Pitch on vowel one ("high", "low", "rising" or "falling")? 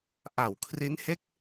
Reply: low